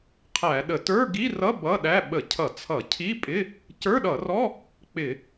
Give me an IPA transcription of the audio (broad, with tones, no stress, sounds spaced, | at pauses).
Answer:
qʰ æ˧˩˧ ɗ ə˧˩˧ t ə˞˧˥˧ ɡ i˧˥˧ r ʌ˧˥˧ b ʌ˧˥˧ ɗ æ˧˥˧ ɓ ə˧˩˧ cʰ ʌ˧˩˧ t͡sʰ ʌ˧˩˧ cʰ i˧˥˧ pʼ ɪ˧˥˧ | c ə˞˧˥˧ ɗ ʌ˧˩˧ r ɔ˧˥˧ | k͡p ɪ˧˩˧